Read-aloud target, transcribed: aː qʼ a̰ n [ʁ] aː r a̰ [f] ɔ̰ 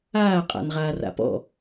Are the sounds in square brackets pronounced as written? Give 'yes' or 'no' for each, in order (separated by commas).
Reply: yes, no